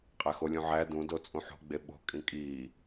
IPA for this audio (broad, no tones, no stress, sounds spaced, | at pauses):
qʼ æ x o lʲ ũ ʕ æ d ũ d o t͡sʼ ũ ħ o̤ ɡ͡b e ɓ o̤ kʼ ĩ kʼ iː